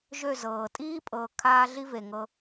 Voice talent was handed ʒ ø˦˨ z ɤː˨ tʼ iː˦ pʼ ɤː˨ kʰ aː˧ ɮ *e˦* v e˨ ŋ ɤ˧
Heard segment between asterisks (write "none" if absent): i˦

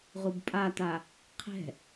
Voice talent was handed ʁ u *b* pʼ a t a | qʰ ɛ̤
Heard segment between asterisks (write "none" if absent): b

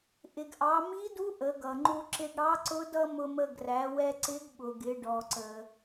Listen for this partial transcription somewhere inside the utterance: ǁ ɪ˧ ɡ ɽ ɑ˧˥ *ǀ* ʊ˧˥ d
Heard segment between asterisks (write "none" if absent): ǀ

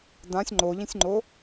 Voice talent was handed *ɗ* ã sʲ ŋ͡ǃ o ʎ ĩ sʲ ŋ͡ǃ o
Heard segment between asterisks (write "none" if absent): d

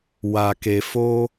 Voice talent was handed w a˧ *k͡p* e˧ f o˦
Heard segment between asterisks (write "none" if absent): k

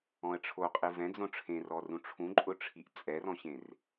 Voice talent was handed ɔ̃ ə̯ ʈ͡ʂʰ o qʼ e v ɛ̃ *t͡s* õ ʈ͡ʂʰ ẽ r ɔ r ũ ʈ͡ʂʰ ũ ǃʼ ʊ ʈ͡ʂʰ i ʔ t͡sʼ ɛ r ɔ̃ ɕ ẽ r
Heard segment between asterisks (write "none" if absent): d͡z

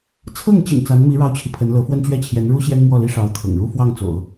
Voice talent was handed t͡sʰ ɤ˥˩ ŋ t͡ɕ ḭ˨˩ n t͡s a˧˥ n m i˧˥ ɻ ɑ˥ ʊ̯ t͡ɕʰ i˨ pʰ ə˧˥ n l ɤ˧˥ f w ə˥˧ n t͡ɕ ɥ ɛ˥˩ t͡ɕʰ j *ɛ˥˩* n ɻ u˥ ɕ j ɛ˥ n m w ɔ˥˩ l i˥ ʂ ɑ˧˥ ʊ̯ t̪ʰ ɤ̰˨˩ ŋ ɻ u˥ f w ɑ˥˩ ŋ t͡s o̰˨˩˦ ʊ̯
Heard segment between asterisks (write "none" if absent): ɛ˧˥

